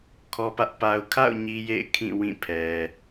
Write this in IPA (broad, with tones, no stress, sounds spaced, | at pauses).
kʰ ɔ˦ p ä˦ ʔ p a˨ ʊ̯ kʰ a̰˦˨ ʊ̯ ɲ i˦ j ḛ˦˨ ɪ̯ kʰ ĩ˦˨ w ĩ˦˨ pʰ ɛ˨